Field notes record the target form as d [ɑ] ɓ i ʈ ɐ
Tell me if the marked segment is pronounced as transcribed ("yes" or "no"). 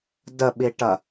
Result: no